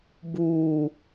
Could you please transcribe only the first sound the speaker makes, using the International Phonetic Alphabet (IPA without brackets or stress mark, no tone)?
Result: b